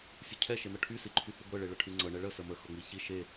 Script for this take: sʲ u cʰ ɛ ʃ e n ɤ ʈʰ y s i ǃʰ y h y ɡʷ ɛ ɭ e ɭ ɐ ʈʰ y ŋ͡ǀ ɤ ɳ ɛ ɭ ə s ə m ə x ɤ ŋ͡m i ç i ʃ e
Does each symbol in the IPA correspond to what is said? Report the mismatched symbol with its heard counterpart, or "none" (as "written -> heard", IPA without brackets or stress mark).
none